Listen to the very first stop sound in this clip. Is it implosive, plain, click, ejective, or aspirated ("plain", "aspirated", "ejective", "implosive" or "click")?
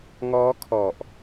aspirated